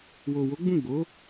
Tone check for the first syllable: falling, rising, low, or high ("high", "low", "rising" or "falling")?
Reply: low